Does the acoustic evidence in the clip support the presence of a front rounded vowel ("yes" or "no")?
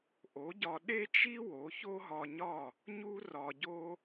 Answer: no